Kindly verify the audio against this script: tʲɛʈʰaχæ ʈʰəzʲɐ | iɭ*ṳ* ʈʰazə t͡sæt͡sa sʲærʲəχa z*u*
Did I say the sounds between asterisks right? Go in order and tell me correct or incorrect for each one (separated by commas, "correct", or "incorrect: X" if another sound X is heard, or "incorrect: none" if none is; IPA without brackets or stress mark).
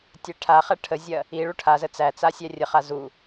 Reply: incorrect: u, correct